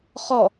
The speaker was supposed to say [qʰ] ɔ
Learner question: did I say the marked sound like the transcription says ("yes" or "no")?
no